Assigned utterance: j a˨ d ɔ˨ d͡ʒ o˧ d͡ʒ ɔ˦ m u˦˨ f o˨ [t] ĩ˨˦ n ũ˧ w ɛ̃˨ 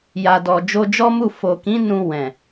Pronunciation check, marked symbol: incorrect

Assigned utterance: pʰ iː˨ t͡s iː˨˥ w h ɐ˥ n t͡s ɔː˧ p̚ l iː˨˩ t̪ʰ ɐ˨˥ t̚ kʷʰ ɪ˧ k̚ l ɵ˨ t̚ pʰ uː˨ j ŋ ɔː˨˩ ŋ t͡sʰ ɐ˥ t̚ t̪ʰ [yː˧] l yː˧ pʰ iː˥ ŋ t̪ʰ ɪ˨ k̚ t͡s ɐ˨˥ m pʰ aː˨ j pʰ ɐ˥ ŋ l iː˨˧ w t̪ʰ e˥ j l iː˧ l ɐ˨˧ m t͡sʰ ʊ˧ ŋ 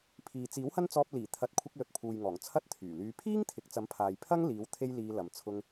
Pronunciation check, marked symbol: incorrect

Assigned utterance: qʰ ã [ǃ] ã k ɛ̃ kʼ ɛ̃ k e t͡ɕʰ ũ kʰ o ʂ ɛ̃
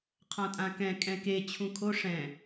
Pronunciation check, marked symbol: incorrect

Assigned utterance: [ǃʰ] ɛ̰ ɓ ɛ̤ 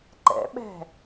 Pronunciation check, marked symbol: incorrect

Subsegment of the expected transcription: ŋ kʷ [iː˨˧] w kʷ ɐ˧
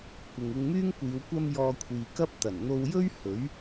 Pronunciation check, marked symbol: correct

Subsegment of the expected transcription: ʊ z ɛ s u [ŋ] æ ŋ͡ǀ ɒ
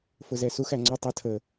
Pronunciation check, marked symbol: incorrect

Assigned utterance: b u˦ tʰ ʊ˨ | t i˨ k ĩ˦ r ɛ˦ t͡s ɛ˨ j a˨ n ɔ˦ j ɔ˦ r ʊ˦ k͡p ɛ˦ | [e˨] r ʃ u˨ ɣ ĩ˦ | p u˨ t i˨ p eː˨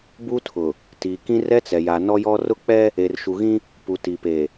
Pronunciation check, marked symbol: correct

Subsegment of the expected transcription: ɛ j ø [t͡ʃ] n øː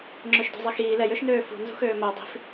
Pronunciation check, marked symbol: incorrect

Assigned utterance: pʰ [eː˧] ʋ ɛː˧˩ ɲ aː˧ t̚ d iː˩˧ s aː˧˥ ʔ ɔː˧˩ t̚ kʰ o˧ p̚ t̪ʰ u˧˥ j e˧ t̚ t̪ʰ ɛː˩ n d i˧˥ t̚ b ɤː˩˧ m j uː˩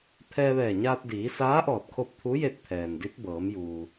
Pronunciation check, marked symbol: incorrect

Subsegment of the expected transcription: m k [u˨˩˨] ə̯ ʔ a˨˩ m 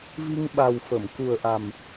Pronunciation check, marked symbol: incorrect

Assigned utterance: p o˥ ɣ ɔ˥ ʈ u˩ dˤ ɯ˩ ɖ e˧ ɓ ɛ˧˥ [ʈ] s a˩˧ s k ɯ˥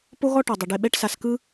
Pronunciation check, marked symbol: correct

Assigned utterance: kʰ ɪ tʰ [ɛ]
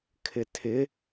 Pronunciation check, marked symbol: incorrect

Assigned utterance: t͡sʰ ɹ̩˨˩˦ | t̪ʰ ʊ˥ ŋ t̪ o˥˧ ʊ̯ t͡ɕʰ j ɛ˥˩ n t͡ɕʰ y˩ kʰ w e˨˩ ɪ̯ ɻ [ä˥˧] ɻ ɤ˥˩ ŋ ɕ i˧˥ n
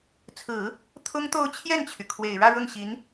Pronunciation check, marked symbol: correct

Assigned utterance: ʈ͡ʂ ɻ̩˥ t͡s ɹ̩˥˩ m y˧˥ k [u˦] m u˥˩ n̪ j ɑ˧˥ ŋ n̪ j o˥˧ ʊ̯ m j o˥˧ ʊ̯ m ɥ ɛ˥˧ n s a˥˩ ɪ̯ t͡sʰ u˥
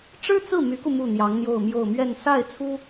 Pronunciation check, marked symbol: incorrect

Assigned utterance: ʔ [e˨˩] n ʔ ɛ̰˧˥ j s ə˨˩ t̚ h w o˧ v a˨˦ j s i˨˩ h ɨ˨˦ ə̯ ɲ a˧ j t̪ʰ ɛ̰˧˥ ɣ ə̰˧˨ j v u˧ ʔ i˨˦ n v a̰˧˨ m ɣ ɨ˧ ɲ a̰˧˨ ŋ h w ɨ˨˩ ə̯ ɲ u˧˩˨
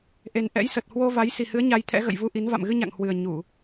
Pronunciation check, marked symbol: correct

